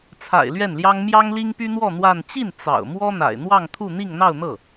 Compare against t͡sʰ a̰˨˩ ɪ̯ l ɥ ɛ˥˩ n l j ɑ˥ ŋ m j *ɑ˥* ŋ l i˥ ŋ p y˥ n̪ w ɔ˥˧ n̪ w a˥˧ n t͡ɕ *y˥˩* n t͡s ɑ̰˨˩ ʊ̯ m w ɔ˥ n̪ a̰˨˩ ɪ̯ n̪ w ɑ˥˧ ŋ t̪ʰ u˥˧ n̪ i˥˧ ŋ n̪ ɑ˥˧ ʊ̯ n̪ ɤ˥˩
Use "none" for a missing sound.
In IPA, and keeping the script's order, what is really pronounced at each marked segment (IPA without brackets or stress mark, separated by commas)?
ɑ˥, i˥˩